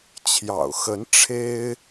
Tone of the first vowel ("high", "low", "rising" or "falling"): low